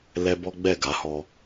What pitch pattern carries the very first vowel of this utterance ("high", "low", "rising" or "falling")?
high